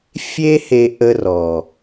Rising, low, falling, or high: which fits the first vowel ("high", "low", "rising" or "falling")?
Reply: high